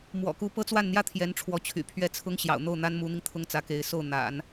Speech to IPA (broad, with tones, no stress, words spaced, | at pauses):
mwɔ̰˨˩ku˧˥ pɤ˥t͡swa˥˩nn̪jä˥ t̪ʰjɛ˧˥nʈ͡ʂʰwɔ˧˥t͡ɕʰy̰˨˩ pʰɥɛ˥˩t͡sʰʊ˥ŋ ɕjɑ̰˨˩ʊ̯n̪o˥˩ʊ̯ n̪a˥nmu˧˥n̪i˧ŋ t̪ʰʊ˥˩ŋt͡sä˧˥ke˧˥ɪ̯ so˥˩ʊ̯ n̪a̰˨˩˦n